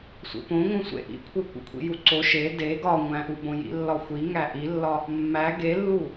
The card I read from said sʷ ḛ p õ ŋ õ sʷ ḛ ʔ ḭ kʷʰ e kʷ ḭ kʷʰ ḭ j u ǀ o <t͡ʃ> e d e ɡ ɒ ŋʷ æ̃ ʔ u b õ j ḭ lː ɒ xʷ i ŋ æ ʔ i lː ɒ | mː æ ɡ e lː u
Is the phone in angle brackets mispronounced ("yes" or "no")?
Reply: yes